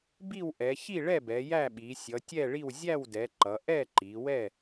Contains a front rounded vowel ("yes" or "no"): no